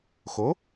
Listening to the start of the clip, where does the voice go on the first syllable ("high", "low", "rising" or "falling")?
rising